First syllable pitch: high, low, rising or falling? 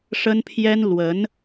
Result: high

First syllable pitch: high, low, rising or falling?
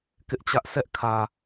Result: high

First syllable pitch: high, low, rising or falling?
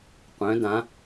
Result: rising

